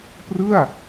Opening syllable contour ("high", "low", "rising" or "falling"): falling